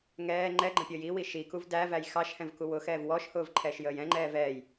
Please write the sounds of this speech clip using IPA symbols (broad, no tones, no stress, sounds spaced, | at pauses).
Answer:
ŋ ɛː ŋ͡ǃ ɛ ɡ͡ǃ ə̃ pʲ əː j i w i ʃ i k u v d æ v æ j x ɑ ʃ h ɛ̃ v k u w ʊ x ɛː v w ɔ ʃ h ʊː v ǃʰ ɛː ʃ j əː j ɛ̃ ŋ͡ǃ ɛː v ɛː j